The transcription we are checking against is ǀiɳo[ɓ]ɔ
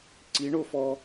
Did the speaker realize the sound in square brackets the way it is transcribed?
no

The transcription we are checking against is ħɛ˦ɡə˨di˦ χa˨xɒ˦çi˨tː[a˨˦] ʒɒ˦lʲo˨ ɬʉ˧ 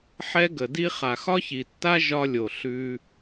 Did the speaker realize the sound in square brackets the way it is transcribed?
no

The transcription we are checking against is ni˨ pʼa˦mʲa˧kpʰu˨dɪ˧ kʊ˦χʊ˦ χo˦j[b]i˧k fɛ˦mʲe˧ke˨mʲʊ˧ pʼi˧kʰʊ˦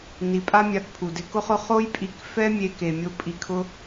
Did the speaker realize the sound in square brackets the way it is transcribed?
no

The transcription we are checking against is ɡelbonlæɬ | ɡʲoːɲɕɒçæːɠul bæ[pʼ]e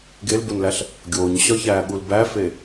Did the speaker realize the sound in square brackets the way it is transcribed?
no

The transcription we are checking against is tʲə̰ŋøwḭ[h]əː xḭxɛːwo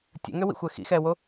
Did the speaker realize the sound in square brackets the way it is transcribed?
no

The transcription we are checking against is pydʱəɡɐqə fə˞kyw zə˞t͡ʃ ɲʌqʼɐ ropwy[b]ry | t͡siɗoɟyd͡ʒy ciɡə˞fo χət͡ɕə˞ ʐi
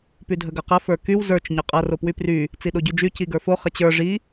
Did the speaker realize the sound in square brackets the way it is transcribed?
no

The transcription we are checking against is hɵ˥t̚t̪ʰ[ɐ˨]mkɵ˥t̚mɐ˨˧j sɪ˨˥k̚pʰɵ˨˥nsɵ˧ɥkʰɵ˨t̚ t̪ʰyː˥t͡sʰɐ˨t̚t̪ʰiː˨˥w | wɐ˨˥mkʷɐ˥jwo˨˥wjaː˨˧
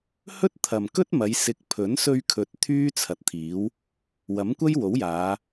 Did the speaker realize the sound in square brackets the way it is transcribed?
yes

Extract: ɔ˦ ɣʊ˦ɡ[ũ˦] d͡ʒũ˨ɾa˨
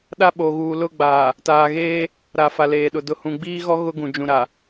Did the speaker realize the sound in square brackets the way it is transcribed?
no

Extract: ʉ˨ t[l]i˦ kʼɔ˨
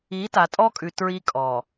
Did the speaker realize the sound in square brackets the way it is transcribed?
no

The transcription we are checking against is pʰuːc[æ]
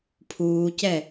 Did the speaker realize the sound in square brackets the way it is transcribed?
no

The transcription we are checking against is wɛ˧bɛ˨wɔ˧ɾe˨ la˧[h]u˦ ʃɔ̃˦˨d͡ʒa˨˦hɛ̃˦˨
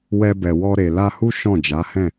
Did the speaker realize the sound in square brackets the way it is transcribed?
yes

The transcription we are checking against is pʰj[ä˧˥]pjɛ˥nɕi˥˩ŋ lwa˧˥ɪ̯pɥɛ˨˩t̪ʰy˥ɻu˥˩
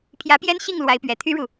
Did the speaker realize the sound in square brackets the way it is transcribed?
yes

